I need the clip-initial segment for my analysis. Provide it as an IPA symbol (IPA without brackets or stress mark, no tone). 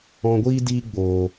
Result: ɔ̃